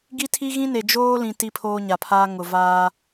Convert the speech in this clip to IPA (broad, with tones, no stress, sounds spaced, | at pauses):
ɡ i˦ tʰ i˦ ɣ ĩ˦ n e˨ d͡ʒ oː˦ l ĩ˨ t i˦ pʰ oː˦ ɲ a˨ pʰ aː˦ ŋ ʊ˨ v aː˦